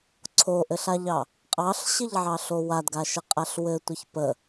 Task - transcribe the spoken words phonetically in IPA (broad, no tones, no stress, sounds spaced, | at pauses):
ǀʰ o ʔ ɘ ɬ a ʎ ɑ | qʼ ɑ ɬ ɕ ɘ ʎ ʕ ɑ ɬ o w a d ɡ a ʃ ə qʼ a ɬ w ɘ tʷ ə ç p ə